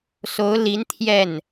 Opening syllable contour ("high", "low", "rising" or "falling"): rising